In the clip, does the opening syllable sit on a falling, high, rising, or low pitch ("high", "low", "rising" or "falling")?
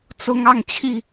high